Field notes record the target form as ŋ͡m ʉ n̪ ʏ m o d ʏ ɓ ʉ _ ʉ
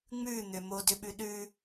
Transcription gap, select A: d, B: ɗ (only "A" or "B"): B